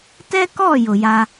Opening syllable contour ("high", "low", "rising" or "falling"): high